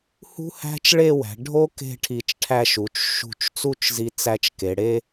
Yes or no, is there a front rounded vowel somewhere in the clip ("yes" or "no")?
no